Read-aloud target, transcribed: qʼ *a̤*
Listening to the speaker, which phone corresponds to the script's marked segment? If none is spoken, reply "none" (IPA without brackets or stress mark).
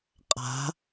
a̤